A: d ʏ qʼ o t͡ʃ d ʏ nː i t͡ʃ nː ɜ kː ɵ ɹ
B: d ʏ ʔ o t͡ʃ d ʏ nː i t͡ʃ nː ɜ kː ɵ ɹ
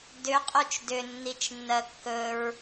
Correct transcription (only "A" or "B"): A